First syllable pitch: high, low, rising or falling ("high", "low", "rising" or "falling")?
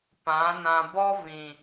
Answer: rising